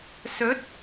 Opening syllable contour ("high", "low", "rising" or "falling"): rising